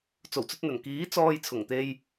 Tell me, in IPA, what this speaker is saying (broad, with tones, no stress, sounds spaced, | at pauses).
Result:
t͡s o˨˩ w t͡s ɵ˧ t̚ n̪ ɵ˨˩ n k iː˨˥ t͡s ɔː˧ j t͡sʰ ʊ˨˩ ŋ t̪ e˧ j